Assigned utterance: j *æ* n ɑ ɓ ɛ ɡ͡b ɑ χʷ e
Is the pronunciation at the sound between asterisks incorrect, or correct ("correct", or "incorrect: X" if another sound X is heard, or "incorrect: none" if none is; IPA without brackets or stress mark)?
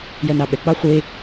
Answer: incorrect: ɜ